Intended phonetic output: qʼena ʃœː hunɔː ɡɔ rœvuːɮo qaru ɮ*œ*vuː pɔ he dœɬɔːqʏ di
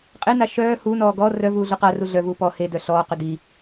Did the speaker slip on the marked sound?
no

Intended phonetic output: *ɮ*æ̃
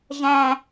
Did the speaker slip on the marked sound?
yes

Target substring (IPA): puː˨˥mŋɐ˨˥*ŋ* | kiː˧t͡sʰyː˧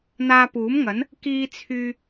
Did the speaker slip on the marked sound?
yes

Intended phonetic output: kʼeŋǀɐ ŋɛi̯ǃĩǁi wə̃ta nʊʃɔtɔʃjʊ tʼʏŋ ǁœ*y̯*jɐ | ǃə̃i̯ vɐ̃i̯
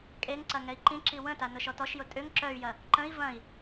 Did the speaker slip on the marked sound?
no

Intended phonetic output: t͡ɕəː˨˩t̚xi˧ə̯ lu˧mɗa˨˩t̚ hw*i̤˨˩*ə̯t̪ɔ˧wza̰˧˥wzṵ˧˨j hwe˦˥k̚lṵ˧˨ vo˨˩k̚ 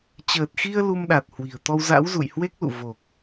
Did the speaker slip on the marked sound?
no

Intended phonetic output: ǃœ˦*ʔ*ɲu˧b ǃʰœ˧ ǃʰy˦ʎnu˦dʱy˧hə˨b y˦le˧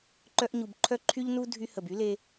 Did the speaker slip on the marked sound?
no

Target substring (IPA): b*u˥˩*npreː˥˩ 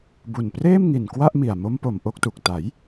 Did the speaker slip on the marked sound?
yes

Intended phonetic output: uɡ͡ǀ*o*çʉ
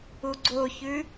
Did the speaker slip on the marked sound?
no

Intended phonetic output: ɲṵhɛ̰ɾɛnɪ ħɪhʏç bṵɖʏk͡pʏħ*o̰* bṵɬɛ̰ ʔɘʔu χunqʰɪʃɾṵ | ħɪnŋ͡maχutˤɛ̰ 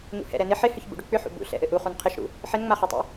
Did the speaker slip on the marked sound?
yes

